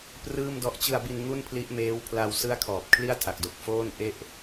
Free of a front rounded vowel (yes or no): yes